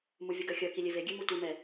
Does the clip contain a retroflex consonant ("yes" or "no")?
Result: no